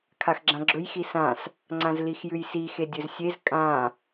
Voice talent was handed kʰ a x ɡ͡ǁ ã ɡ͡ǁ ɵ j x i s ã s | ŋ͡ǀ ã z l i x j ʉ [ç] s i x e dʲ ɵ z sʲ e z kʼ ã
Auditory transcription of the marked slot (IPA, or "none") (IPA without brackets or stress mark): j